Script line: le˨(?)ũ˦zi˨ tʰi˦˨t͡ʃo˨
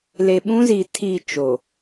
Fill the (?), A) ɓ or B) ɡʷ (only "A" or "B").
A